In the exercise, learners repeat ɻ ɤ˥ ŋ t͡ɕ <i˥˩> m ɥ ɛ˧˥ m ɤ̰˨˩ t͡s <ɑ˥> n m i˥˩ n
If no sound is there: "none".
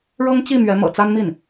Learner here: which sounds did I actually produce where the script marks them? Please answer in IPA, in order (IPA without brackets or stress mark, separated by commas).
i˥˩, a˥